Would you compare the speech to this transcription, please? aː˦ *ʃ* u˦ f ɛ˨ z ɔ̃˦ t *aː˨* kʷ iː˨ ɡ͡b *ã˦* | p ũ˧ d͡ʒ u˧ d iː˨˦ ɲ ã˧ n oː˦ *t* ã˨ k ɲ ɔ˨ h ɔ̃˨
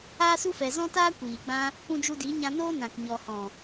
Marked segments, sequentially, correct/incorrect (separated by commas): incorrect, incorrect, correct, incorrect